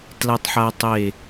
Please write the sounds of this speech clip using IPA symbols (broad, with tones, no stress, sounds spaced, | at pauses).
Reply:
t l a˦ tˤ ħ a˦ tˤ e˥˨